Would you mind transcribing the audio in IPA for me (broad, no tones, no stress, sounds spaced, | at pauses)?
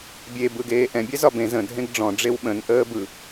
bʲ e b ɯ ɡ eː ʔ ɛ̃ bʲ ɛ z ɒ b ẽ z ə̃ dʱ ẽ ɡ ɖ͡ʐ ɔ̃ ɖ͡ʐ e w ɓ ə̃ n ʔ əː b ɯ